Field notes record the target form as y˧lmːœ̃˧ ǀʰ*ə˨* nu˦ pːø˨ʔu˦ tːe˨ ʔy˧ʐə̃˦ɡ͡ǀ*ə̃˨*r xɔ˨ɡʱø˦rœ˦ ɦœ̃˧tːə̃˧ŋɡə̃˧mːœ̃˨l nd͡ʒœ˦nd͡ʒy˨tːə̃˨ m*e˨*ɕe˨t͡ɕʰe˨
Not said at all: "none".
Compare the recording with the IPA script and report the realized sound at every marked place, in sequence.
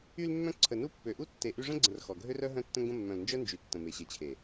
ə˨, ə̃˨, e˨

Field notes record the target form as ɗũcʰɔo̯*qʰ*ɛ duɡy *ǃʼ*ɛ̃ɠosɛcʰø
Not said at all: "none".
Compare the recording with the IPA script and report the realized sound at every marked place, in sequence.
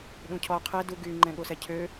qʰ, ŋ͡ǃ

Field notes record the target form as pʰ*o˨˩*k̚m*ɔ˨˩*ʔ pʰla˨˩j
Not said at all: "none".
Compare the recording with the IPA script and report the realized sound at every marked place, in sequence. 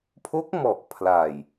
o˦˥, ɔ˨˩

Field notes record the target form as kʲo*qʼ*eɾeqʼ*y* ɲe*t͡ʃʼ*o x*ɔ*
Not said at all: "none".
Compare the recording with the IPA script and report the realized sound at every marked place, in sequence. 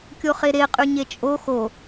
χ, y, t͡ʃʼ, o

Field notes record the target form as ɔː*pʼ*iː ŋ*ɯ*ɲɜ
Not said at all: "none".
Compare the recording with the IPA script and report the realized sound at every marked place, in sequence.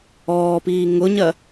p, ʊ

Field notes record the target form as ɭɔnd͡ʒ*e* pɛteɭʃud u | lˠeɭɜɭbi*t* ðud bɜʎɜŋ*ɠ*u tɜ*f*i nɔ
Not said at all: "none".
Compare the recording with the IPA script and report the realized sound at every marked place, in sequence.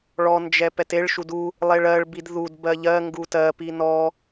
ɛ, d, ɡ, p

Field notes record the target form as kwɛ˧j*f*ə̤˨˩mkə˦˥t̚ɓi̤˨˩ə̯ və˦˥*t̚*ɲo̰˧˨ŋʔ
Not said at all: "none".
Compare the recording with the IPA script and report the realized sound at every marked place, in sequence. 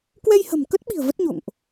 h, t̚

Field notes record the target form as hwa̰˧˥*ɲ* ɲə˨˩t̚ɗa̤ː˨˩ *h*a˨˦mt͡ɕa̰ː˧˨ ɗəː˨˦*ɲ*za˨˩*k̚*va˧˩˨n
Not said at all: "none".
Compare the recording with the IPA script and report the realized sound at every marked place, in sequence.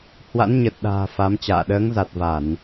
n, f, ŋ, t̚

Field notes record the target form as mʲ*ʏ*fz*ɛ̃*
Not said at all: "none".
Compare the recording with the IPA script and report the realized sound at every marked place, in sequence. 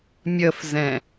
ə, ɛ̃

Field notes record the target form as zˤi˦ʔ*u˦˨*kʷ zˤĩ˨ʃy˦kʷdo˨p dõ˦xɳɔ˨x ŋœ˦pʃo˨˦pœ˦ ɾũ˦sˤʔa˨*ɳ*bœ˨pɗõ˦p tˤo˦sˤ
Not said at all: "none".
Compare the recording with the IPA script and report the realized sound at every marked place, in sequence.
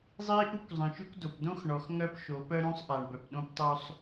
u˦, ɳ

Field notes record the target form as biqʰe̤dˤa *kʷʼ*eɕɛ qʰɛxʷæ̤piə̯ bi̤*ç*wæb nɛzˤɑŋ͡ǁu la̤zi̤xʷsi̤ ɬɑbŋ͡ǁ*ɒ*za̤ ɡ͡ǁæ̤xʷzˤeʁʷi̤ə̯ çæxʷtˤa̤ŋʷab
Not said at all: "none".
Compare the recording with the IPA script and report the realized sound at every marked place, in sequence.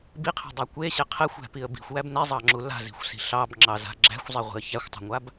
kʷ, xʷ, ɑ

